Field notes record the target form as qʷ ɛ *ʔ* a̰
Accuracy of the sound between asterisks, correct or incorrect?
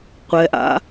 correct